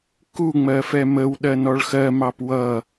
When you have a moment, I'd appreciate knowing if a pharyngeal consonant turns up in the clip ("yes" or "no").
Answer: no